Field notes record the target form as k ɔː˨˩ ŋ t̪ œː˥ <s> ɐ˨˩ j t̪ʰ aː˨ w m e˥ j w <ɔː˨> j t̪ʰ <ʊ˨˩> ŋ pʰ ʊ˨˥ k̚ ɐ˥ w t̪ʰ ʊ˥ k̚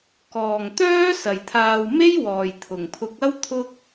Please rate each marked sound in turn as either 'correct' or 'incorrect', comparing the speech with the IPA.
correct, incorrect: ɔː˨˩, correct

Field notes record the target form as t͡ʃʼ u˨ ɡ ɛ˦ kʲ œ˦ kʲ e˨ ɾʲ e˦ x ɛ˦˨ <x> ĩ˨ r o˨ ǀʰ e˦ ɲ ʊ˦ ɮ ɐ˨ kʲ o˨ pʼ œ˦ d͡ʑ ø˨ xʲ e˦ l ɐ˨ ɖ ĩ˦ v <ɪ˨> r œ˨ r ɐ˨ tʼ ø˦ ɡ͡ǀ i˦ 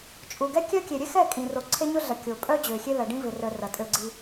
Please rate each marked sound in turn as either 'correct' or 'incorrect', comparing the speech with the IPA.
incorrect: kʼ, correct

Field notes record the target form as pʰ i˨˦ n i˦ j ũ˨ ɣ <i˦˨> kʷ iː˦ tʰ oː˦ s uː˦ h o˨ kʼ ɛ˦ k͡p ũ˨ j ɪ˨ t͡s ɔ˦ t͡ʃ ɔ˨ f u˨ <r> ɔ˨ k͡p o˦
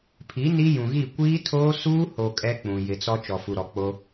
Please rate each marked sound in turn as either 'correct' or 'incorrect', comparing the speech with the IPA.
correct, incorrect: ɾ

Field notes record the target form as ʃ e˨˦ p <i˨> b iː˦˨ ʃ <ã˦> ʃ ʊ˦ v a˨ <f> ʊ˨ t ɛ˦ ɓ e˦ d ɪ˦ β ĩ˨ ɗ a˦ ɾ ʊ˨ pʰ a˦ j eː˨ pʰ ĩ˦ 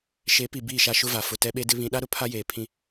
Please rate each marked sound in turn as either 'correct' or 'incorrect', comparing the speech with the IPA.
correct, incorrect: a˦, correct

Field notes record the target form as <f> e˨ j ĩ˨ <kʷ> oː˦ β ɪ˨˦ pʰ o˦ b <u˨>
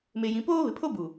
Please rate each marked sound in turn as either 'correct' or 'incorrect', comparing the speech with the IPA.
incorrect: m, incorrect: p, correct

